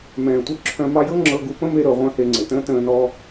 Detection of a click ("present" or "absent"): present